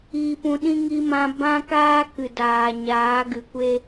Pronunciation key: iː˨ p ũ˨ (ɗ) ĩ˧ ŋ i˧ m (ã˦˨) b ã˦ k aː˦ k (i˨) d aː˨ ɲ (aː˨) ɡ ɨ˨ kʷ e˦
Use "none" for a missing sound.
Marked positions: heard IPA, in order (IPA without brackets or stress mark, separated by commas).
ɗ, ã˧, ɨ˨, aː˨˦